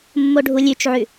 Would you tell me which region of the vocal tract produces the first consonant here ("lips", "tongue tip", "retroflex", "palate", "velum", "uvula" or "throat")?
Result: lips